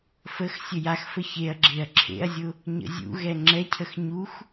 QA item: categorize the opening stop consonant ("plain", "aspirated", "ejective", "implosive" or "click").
click